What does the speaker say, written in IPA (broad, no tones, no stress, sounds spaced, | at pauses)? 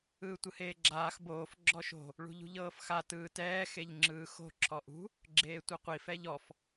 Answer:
ɯː tʷ ɯ h eː ɡ͡ǁ aː x b oː f ɡ͡ǁ ɔ ʃ o̤ | ɭ ṳ ʎ ṳ ʎ ɤː f x a t ɯː t ɛː x e ʎ ŋ͡ǁ ɯː x o̤ ǁʰ ɔ ʔ ṳ | ɡ͡ǁ eː tʷ ɛ qʷ i f ɛ ʎ ɔ f